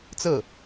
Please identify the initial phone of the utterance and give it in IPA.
t͡s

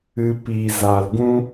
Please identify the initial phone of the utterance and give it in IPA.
ɨ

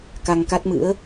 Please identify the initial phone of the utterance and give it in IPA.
k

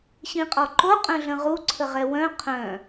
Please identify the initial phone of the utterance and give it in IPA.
ɕ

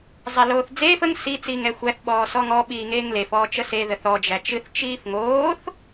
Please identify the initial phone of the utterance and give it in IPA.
zˤ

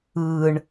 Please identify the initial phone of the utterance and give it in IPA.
ɯː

